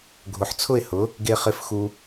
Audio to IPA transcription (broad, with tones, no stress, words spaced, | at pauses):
ɡʱʊ˨ħt͡sʰʊ˦˨ɪ̯ hʊ˨˦ | ɡe˦χɪ˦fxu˦